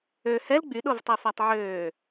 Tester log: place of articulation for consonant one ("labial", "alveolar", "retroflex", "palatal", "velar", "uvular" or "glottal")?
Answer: glottal